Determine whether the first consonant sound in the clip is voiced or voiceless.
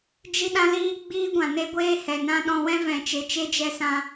voiced